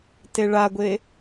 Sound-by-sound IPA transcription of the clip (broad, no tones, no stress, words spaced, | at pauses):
teɭaɡʷe